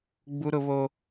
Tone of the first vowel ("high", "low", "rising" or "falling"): high